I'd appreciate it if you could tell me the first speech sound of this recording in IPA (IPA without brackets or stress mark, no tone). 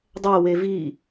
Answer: dˤ